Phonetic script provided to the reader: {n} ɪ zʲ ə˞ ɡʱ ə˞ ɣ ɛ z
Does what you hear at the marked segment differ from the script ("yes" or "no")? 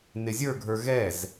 no